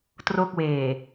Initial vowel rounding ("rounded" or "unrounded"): rounded